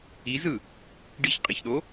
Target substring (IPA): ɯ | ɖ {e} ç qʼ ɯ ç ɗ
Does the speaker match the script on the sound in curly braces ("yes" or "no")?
no